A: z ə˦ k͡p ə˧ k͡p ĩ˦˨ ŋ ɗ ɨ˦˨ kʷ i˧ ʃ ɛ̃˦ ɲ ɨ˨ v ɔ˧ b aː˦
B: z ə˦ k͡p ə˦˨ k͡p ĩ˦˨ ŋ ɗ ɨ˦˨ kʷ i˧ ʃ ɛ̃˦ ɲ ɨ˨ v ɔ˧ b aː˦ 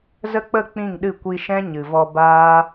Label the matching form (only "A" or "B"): B